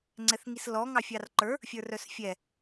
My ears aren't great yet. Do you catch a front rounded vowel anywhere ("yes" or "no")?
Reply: yes